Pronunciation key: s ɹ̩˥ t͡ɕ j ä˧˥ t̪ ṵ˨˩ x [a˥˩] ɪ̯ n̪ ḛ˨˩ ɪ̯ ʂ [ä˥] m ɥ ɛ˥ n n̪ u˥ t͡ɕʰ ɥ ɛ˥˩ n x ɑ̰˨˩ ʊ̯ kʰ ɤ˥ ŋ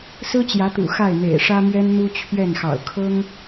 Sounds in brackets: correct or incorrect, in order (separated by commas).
correct, correct